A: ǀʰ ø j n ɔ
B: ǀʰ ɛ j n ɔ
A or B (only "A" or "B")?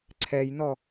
B